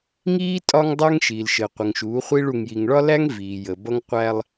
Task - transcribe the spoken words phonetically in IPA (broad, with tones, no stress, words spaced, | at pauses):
ŋiː˦ tʼɒ˦ŋdˤæ˦ŋ ʃiː˨lʃə˨ qʷə˨ŋʃuː˨˦χʷi˦ɭ u˨ŋji˨ŋɭɒ˦læ˦ŋ viː˨jə˨bʌ˦ŋqʷæ˦lˠ